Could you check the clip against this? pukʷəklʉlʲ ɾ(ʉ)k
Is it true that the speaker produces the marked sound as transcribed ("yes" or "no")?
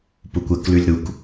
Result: no